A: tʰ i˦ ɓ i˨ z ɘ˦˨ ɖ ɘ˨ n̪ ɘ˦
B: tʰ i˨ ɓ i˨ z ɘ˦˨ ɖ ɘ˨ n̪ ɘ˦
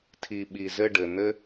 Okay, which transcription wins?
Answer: B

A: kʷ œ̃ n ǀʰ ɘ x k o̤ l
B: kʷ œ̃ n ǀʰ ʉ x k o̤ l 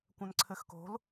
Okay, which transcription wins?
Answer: A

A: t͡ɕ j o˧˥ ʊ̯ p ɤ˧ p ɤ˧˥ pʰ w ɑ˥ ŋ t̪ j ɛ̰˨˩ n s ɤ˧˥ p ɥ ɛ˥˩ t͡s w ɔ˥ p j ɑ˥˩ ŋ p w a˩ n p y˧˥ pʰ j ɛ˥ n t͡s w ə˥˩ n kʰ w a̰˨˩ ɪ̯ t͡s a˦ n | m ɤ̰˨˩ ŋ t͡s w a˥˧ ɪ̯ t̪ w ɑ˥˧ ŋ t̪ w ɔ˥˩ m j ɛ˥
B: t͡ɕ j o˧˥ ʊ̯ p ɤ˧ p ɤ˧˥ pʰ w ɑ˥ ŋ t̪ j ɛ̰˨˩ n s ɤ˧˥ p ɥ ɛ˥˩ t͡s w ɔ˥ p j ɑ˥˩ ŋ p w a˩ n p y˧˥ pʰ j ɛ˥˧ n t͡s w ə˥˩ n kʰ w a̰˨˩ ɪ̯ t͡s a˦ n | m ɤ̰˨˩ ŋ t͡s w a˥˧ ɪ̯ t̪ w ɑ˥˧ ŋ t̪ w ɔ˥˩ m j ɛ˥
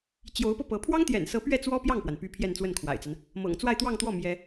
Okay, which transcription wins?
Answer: B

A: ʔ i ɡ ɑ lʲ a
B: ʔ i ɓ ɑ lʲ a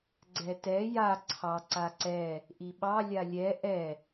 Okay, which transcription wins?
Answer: B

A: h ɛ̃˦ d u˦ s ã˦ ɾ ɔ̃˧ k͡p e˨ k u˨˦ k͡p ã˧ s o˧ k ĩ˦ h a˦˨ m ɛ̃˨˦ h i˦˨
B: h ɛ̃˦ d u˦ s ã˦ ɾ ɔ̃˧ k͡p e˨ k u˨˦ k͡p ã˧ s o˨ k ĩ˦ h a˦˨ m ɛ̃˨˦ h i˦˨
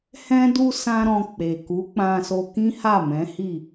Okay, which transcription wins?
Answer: A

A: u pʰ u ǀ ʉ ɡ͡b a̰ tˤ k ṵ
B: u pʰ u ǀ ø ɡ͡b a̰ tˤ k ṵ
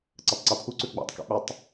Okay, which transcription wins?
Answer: A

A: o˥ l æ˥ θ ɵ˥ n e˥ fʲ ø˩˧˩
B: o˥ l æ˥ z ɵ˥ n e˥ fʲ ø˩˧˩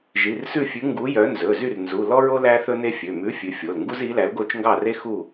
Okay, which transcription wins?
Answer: A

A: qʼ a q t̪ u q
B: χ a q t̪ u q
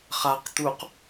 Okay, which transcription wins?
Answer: B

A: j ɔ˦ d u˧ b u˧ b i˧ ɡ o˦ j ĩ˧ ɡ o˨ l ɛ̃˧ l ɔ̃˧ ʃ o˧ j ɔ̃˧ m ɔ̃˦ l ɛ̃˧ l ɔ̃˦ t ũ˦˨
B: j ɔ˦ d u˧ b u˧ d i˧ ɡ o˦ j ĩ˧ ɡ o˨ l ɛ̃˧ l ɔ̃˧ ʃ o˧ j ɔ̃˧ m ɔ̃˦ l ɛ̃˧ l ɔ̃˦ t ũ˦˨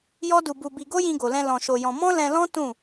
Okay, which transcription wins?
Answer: A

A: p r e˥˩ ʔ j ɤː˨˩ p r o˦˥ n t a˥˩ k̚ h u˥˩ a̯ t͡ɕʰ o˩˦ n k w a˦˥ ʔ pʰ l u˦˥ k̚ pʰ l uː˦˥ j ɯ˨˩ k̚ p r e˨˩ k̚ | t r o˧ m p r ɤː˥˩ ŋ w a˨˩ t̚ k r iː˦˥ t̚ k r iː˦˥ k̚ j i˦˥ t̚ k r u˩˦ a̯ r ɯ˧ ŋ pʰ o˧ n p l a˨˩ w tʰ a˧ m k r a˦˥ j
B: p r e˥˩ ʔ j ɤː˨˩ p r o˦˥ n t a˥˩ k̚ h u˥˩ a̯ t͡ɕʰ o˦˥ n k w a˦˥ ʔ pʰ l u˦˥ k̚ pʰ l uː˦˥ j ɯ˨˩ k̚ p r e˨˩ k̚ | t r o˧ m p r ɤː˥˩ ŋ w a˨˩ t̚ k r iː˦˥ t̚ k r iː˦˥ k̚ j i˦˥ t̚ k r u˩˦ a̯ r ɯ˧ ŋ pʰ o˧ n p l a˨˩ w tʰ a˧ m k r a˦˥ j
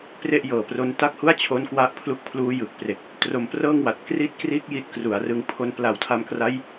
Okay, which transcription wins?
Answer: B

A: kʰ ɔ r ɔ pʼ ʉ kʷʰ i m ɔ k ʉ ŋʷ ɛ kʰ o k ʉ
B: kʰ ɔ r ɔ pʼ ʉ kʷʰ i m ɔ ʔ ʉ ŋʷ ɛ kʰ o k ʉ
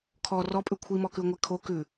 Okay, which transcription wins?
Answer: A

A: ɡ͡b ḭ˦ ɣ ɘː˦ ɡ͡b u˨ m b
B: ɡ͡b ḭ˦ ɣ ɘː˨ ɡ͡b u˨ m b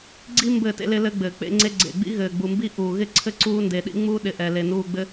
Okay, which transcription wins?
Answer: B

